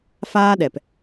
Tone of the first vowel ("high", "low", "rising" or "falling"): high